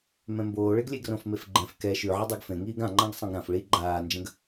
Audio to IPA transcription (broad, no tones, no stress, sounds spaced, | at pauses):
m ɛ̃ m b oː ɭ e ɡ lʲ e ɡ r õ f m e f ɡ͡ǃ ɛ̃ f k ɛ ʃ ʉ ʕ ə dˤ o ɡ f ẽ ŋ iː ɡ ã ŋ͡ǃ ã ɡ sˤ ẽ ɡ ɾ ã f ɭ i ɡ͡ǃ aː n d͡ʒ ə̃ ɡ